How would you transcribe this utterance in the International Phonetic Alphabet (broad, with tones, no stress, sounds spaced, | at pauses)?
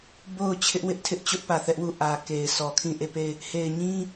b o˦˨ ʊ̯ t͡ɕʰ ɪ˦ ʔ w ɪ˦ ʔ tʰ ɪ˦ ʔ t͡ɕ ʊ˦ ʔ p ä˨ θ ɛ˦ ʔ w u˦˨ ʔ ä˨ k e˨ ɪ̯ s ɔ˨ kʰ ĩ˦˨ ʔ e˦˨ p e˦˨ ɪ̯ | h e˨ ɪ̯ ɲ ĩ˦